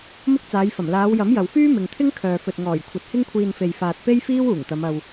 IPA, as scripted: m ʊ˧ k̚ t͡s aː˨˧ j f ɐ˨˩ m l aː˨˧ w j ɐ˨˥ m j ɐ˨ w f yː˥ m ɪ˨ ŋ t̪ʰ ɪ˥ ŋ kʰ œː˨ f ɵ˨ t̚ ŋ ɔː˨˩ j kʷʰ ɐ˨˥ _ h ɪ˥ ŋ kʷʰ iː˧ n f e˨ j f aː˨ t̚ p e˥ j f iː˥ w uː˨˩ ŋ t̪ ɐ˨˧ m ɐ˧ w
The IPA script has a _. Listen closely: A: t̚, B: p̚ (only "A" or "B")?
A